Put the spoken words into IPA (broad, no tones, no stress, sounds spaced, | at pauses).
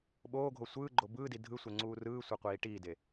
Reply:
ɓ oː ɡʱ o sʷ ɯː ɡ͡ǃ o b ɯː d i dʱ ɯ sʷ e ŋ͡ǀ uː r ɯː sʷ e qʷ iː ʈ iː d e